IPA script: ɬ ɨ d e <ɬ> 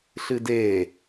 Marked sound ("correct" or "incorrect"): incorrect